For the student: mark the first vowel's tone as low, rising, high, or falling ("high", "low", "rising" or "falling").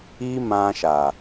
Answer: high